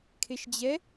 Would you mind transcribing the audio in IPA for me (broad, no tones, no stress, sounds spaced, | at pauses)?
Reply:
kʰ e ʃ d͡ʑ ɛ